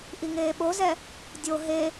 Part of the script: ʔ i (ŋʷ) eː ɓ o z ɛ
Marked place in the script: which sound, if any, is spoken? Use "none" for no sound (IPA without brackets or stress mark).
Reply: ŋ